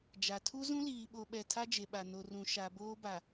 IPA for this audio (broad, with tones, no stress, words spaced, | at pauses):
d͡ʒa˨tʰu˦zũ˦ liː˨ɓo˨ɓɛ˨ tʰa˦d͡ʒe˨ɓa˨ no˨rũ˨ ʃa˨boː˦ba˨